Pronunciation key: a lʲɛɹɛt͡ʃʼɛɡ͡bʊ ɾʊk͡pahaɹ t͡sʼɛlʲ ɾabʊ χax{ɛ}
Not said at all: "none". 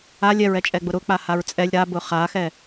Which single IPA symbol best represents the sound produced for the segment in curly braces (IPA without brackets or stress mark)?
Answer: ɛ